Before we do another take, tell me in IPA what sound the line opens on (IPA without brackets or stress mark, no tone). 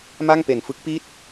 m